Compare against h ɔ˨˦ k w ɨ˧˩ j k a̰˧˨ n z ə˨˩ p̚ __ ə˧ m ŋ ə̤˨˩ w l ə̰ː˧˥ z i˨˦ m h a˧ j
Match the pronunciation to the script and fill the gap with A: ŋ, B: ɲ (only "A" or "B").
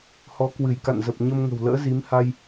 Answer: B